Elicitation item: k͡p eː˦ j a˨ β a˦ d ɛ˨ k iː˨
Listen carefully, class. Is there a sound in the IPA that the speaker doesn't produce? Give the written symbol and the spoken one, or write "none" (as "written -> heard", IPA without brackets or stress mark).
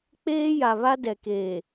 iː˨ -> eː˨